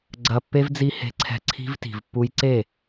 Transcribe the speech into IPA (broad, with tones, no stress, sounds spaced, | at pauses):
ɡ͡ǀ ɐ˧ pː e˦ v d͡z i˧ h e̤˧ ǀʰ ɛ̤˧ ǀʰ i̤˦ v t i̤˨ v pː u˦ j ǀ e˦˨